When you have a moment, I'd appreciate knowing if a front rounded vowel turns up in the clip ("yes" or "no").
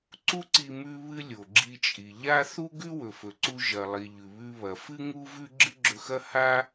no